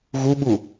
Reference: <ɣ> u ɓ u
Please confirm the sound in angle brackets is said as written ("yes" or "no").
yes